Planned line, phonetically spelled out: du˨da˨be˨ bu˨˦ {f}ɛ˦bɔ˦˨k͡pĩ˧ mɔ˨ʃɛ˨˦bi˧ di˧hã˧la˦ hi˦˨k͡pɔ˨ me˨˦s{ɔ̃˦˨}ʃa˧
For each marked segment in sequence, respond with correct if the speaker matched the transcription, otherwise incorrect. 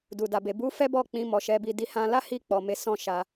correct, correct

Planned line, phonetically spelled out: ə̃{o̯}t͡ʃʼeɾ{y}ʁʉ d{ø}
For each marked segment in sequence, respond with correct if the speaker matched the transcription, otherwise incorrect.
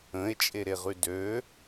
incorrect: e̯, incorrect: e, correct

